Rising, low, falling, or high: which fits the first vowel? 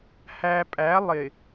low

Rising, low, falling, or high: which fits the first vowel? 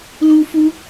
high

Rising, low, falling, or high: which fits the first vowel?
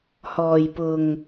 low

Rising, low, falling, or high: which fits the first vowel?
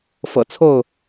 low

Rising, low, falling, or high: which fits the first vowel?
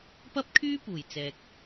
high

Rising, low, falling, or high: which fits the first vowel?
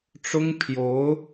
high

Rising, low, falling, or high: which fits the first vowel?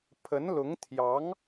rising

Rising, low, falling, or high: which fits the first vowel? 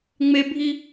high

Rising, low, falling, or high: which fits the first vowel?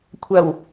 low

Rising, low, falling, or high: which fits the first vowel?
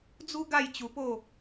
high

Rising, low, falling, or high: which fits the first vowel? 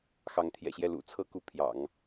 rising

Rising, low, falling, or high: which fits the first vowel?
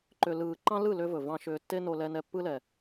low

